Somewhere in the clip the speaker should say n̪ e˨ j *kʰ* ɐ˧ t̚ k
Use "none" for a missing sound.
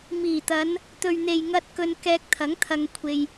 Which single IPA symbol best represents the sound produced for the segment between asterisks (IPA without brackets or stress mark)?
ŋ